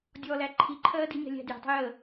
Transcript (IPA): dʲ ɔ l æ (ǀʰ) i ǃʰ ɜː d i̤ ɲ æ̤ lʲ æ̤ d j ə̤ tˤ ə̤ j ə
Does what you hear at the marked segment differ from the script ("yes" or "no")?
yes